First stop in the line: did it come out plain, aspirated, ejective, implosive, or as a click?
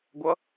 plain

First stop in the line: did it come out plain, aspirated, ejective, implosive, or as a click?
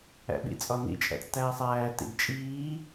implosive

